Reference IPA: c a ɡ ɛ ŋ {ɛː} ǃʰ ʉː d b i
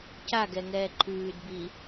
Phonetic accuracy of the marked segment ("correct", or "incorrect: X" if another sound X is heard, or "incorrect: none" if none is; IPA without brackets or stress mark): correct